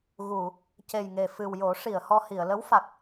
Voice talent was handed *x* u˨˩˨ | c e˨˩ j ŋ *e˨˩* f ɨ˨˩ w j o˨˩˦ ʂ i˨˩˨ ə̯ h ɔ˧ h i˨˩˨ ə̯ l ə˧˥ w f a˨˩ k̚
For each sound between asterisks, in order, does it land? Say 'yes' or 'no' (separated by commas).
no, yes